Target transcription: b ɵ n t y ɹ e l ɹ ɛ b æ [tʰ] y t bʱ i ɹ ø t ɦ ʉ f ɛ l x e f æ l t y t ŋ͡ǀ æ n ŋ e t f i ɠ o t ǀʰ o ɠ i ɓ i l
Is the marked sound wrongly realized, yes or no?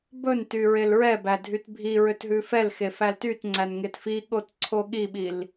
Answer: yes